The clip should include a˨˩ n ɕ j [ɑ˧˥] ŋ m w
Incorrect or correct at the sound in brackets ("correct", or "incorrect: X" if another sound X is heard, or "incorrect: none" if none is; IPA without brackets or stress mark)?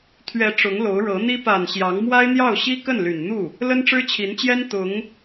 correct